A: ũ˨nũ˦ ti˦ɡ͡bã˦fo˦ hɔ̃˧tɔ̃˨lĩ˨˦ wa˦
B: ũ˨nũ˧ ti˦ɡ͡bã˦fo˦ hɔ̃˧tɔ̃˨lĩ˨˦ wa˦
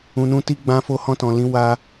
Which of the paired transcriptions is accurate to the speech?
B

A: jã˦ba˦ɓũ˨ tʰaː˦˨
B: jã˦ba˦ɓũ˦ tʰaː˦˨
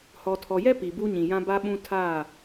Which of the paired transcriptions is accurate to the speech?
B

